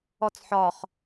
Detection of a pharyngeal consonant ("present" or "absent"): present